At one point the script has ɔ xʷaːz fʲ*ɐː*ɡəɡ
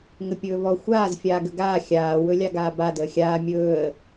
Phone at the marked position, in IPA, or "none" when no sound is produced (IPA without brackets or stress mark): aː